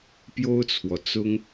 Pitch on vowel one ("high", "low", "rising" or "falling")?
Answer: high